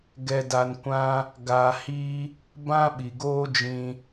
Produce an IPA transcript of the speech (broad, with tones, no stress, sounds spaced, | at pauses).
ɡ ɛ˧ d a˧ n kʷ ã˦ | ɡ a˧ h i˦ | b ã˦ ɓ i˨ ɡ oː˦ d͡ʒ ĩ˧